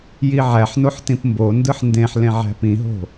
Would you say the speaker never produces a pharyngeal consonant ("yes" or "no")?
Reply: no